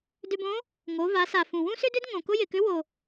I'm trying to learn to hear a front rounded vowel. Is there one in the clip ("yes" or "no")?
yes